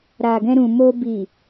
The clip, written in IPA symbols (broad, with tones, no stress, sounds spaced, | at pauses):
ɾ a˨ ɡ ɛ̃˧ ɾ ũ˨ m o˧ b i˨